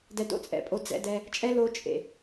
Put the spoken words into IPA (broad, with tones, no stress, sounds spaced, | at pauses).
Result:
d ɛ˧ d o̰˥ t͡sʼ ɛ̰˧ pʼ o˧ d͡z ɛ̰˧ d ɛ˧ | t͡ʃʼ ɛ˥ l o˧ t͡ʃʼ ḛ˩